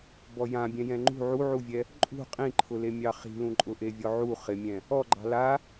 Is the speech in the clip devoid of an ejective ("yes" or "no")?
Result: no